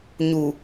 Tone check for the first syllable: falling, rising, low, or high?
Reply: low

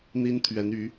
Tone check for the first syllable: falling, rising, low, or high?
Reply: high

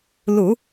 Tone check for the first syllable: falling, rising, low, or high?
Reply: low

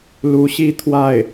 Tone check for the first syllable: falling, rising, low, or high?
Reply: rising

